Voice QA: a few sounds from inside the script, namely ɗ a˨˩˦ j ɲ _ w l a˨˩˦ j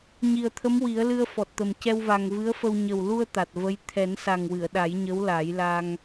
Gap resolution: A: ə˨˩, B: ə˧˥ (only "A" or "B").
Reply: B